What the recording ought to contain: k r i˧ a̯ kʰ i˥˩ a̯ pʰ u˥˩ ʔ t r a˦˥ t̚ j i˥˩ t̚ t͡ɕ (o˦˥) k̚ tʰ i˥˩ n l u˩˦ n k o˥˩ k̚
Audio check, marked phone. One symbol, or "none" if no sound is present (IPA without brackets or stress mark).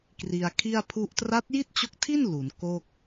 o˦˥